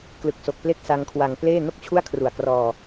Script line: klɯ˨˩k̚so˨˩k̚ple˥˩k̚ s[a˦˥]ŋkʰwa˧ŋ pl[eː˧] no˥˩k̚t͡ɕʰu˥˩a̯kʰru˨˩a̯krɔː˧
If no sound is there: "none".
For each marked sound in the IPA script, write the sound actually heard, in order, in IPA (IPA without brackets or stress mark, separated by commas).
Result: a˦˥, eː˥˩